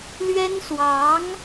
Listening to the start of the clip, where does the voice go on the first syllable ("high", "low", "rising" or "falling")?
high